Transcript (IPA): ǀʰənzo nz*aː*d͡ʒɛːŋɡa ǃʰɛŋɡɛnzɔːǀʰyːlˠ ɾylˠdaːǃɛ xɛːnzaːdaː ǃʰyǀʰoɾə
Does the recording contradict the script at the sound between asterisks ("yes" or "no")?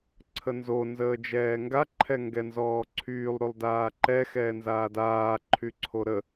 yes